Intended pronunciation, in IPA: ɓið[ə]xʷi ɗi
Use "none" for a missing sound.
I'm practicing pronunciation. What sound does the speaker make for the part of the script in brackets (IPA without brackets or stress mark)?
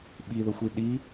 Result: ə